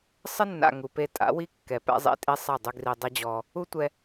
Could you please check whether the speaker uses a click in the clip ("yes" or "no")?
no